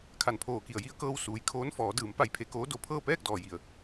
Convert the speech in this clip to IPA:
kʰ a˧˩ n pʰ oː˧˩ k i˧˩ ə̯ j i˧ ə̯ k ɤː˧ w s uː˩ j kʰ oː˧˥ n f ɔː˩˧ d ɯː˩˧ m p a˧˩ j pʰ e˧ k oː˧˥ d o˧˩ pʰ ɤː˥˨ p ɛː˥˨ k̚ d ɔː˩ j i˩ ə̯

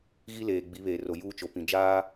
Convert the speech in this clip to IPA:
ɣ i˦ l eː˨ ɡ͡b i˨˦ β eː˨ r o˨ j uː˦ t͡ʃ o˨ p ĩ˨ d͡ʒ aː˦

